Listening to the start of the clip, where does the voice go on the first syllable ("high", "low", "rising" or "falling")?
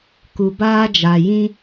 low